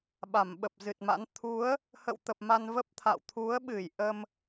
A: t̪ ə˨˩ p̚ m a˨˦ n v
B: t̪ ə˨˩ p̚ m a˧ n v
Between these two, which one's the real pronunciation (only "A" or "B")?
B